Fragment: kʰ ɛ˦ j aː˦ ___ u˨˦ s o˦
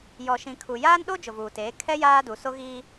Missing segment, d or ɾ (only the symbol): d